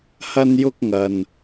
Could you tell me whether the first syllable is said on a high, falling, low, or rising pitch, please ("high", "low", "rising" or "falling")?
high